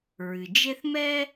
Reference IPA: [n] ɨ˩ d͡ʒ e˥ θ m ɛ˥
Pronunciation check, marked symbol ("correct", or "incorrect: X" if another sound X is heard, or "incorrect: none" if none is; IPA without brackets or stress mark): incorrect: ɹ